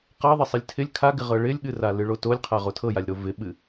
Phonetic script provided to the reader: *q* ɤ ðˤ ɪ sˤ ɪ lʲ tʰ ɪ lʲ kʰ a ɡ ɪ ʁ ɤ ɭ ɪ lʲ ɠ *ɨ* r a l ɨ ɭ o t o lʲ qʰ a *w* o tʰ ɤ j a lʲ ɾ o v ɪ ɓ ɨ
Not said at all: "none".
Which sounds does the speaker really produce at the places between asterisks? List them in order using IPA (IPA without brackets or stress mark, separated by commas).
q, ɨ, ʁ